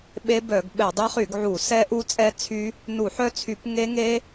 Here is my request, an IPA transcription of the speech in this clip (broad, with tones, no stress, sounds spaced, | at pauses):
ɓ e˦˥ b œ˧˩˧ ɡ ɓ ɛ˧˩˧ dˤ ɛ˦˥ χ y˧˩˧ ɡ ʕ u˧˩˧ s ɛ˦˥ ʔ u˦˥ t͡sʼ ɛ˦˥ t͡sʰ y˦˥ | n u˧˩˧ ħ œ˦˥ t͡sʰ y˧˩˧ p ŋ e˦˥ ŋ e˦˥